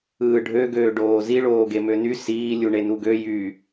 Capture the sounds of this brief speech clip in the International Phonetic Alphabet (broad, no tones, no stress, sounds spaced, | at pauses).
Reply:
ɯː ɖʱ ø ɡ øː ɖ oː z i ɭ oː ɡ e m ø n y s iː lʲ u ɳ e n u ɡ ø j y